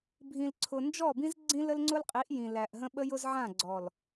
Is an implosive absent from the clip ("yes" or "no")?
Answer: no